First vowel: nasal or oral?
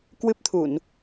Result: oral